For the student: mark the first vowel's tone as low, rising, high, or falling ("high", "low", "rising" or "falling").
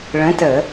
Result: rising